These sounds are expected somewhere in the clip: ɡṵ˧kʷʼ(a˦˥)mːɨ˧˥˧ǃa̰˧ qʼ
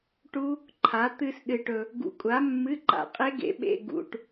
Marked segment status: incorrect: a˨˥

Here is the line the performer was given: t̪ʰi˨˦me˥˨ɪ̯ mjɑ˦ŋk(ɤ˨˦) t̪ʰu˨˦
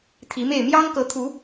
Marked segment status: correct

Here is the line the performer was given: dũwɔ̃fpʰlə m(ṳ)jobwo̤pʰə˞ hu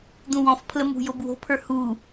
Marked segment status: correct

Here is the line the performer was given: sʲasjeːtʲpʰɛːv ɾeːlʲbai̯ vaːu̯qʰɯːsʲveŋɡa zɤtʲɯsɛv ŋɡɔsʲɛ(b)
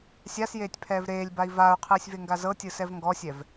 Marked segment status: incorrect: v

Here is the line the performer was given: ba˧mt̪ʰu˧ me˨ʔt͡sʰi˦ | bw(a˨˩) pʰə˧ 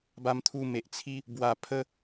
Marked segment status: correct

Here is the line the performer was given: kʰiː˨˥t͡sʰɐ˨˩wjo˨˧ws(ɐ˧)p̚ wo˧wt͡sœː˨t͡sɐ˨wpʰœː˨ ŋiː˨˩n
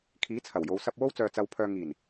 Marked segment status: correct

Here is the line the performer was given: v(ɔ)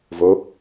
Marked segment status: incorrect: o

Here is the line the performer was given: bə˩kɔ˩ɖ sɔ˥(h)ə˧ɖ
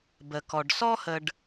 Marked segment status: correct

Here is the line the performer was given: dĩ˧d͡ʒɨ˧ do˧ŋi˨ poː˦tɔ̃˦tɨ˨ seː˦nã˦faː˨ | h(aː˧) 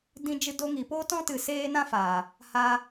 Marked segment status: correct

